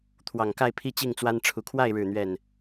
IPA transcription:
t̪ʰwɑ˨˩ŋka˥˨ɪ̯ pʰi˥˨t͡ɕi˥˨ŋt͡swa˦n ʈ͡ʂʰu˨˩kʰwa˥˨ɪ̯ ɻɻ̩˥˨n̪ɥɛ˥˨n

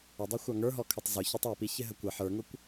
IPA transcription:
ədˤʌxʷɑ ŋə˞ɦɔkʰʌtˤ zʊ çɑtˤæpiçɪ ɦəkʷə ħə˞ŋʊkʷ

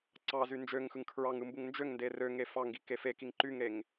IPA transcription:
ǀɑzy nd͡ʒøŋxɯŋ kʰɹɑŋɯ mbuŋnd͡ʒøŋnde rø ŋefɑŋɡi kefekiŋ ǃyŋɾeŋ

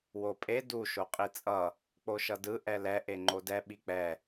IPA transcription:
wopʼe du ʃoqʼit͡sʼʌ | k͡poʃʌdɯ ʔɛlɛ ʔeŋ͡ǃodɛ ɓik͡pɛ

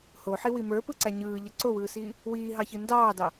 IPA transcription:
hoħiwi mə˞pɯǀæ ɲɯːʎə ǀowɯːsiː | wiːɦɑçɯ ndɑːdɑ

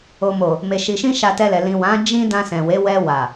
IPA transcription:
o˨mo˨ | me˨ʃi˨ʃĩ˧ ʃa˧tɛ˧lɛ˨ lĩ˨wã˨˦ d͡ʒĩ˦ dã˧sɛ̃˨we˨˦ wɛ˧wa˨

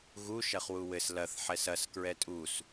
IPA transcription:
ɣu ʃɐχwuwɘs lɐθ ħɛsɐs kɹɛtʼus

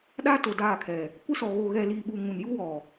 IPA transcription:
ɗaː˦ to˨daː˦˨kʰɛ˨ | kʷɪ˦sɔ˨ ɣo˨ɣɛ˨liː˨ ɓu˨ ŋũ˨nju˦wɔ˨

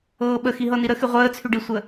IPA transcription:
ɤːɓə xiɦɤniɾə xyʁʷəːt͡sʰy ɖisʷə

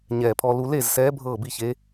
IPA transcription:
ɲɛː˨˩pʰɔ˧ lu˧le˥˨zsɛː˧˥ bʱɤː˥˨bi˥˨çe˧˥

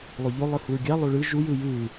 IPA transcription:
lˠoʎo lˠɯhuɹɡʲa lˠoɭɯ ʒujɯ jɯː

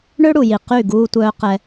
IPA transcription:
ɳø˦ɽu˨ji˨ qy˦˨ ɡuː˧tʷœː˧ qɛ˧

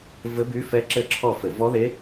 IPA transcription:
vɘ˦˥by˦˥fɛ˦˥ ǁɘ˦˨ǁʰɔ˦˨fɘ˧˩˧ vɔ˦˥ðe˦˥

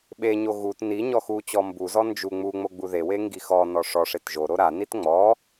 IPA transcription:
ɓeɲo ɣut ni ɲɔxut͡ɕɔ mbuzɔ nd͡ʒu ŋ͡muŋ͡mo ɡ͡buðewe ŋɡixɔnɔ ʂɔʂet ʒoɾo ɾanit ŋ͡mɔ

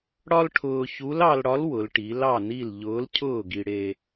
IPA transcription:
ɽɒ˥lʈʰʊː˧ çu˧˥lɑ˧lɽɒ˧˥l wʊ˩˧lʈi˩˧ lɑ˥˨ni˥˨l ʎʊː˧˥lcʰʊː˥˨ɡi˧ɽe˧

